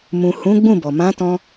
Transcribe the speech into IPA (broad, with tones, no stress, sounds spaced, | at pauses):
m ũ˨ h ũ˨˦ ɡ͡b ũ˦˨ b ɔ˨ m ã˨˦ t ɔ̃˧